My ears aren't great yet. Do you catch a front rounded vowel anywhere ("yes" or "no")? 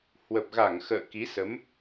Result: no